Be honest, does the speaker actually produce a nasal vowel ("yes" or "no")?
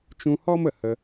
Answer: yes